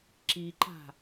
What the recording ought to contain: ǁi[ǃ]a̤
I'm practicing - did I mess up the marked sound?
no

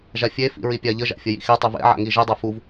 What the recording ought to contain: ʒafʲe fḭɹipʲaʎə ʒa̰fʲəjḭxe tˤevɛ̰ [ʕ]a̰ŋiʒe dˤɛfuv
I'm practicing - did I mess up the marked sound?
no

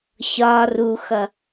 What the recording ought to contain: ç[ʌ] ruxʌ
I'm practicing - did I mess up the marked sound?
yes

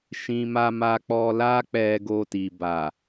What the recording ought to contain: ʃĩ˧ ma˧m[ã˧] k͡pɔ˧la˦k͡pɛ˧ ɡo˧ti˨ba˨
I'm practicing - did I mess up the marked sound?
yes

